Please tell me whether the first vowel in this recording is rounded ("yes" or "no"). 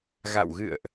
no